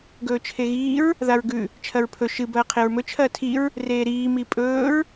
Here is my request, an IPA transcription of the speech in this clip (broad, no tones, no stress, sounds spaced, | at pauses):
ɡ ɵː t͡ʃʰ e ɣ iː ɹ | ð a ɹ ɡ ʉ | t͡ʃʰ ɐ ɹ pʰ ɵ ʃ ɨ b ɐː qʰ e ɹ m ɵ t͡ʃʰ ɐː tʰ i ɹ | r eː ɾ iː m i pʼ ɵː ɹ